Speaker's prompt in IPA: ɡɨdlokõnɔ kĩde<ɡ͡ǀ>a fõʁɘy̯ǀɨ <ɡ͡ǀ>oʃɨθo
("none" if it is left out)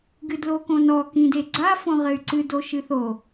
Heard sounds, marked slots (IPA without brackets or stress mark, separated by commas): ɡ͡ǀ, d